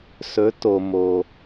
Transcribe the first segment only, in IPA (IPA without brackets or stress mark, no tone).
s